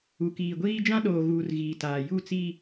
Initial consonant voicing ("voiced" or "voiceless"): voiceless